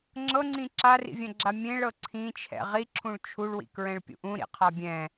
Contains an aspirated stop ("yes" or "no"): yes